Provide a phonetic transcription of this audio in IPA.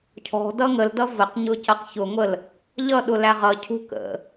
cʰɔ̤ dʌŋəldʌ vəqɲʊ cʌqçʊŋʷəl | ʎʌɗʊ læʁʌcʰṳ kə̰

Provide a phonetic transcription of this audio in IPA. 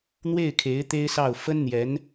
n̪we˥˩ɪ̯kʰe˧˥ɪ̯ t̪e˥ɪ̯sɑ˥˩ʊ̯ fə˥nn̪jɛ˧˥n

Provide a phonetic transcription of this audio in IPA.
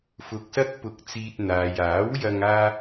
fʊ˧k̚sɐ˥k̚pʊ˧k̚t͡siː˧t̚ n̪aː˨jaː˨˥wjɐ˧ŋ aː˥

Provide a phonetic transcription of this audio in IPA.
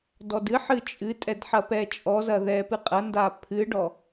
dɔdɨħɨ t͡ʃʼɨtʼɛd ħɐpɛt͡ʃʼɔzɐ ðɛpɨqʼɐnda pʰɨɖɔ

